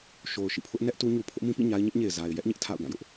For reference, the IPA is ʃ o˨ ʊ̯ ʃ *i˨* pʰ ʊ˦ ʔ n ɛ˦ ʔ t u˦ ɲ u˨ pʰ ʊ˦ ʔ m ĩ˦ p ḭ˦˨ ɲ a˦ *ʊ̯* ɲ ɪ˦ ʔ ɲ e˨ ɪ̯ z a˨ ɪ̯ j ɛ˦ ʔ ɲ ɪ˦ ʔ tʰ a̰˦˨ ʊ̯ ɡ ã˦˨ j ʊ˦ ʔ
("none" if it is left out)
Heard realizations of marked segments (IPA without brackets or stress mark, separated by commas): ḭ˦˨, ɪ̯